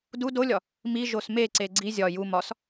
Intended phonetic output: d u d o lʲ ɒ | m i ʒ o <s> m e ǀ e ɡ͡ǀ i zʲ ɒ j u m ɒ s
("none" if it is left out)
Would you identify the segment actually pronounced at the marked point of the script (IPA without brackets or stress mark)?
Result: s